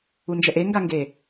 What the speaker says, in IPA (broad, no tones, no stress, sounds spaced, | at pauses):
u n d͡ʒ ɛ ʔ e ŋ ɡ a ŋ ɡ e